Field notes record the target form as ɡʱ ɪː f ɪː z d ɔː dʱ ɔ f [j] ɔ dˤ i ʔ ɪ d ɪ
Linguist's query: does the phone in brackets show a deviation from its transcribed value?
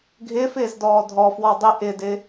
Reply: yes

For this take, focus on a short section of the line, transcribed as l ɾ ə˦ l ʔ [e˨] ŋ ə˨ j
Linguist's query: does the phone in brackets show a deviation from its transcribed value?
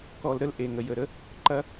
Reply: no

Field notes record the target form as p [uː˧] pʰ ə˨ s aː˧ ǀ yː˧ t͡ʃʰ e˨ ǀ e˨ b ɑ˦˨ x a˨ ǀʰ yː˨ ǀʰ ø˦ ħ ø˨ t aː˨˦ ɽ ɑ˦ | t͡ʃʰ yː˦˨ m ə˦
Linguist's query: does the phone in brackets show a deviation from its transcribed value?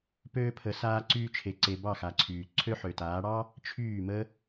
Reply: yes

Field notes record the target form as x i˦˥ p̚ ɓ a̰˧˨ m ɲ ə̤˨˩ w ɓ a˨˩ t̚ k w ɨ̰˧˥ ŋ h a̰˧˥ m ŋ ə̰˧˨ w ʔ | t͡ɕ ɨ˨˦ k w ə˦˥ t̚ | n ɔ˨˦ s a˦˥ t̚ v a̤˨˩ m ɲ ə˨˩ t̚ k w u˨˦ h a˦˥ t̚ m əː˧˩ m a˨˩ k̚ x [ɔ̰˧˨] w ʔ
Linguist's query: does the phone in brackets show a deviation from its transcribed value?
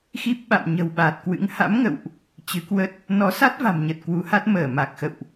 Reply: yes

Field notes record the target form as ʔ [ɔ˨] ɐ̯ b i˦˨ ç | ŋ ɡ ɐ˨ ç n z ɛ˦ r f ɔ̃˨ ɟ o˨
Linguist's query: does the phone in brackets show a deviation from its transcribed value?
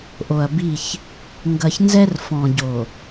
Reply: yes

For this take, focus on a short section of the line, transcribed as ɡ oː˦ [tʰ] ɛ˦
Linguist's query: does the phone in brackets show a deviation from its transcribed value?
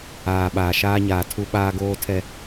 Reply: no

